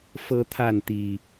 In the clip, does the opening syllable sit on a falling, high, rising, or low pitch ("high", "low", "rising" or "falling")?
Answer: high